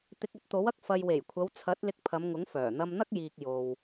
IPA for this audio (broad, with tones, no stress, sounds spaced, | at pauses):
t̪ ɪ˧ k̚ ɐ˥ t̚ t̪ o˨˥ w ɐ˥ k̚ f ɐ˨ j w e˨˩ j kʷʰ ɐ˨˧ w t͡sʰ ɐ˨˥ t̚ l ɪ˧ k̚ pʰ ɐ˨˧ m ŋ ʊ˨˥ ŋ f œː˨˩ n̪ ɐ˧ m n̪ ɐ˥ k̚ j iː˨ k̚ j o˨ w